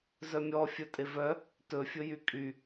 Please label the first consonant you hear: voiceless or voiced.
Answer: voiced